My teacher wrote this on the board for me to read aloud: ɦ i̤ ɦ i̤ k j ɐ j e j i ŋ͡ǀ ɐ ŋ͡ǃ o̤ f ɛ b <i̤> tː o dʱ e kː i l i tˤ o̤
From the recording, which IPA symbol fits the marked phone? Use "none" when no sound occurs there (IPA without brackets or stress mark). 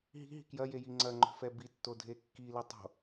i